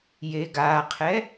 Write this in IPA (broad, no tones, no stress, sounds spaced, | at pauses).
j e ɡ a qʰ ɛ